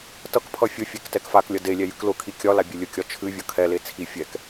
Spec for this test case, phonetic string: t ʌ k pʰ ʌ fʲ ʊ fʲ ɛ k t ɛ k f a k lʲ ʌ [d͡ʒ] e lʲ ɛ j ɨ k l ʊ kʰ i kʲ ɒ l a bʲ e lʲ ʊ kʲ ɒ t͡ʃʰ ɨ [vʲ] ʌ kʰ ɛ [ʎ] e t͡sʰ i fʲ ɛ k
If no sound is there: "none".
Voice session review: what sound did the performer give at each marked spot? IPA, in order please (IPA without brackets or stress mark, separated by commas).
d, vʲ, l